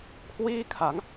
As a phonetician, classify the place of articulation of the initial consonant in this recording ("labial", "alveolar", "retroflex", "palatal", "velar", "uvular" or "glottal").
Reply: velar